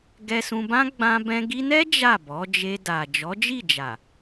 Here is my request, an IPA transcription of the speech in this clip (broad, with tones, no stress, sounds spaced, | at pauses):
ɡ ɛ˧ s ũ˧ b ã˦ ɡ͡b ã˦ b ɛ̃˦ ɡ i˧ n ɛ˦ d͡ʒ a˦˨ b ɔ˨˦ d͡ʒ e˧ d a˨ d͡ʒ ɔ˨˦ d͡ʒ i˦˨ d͡ʒ a˨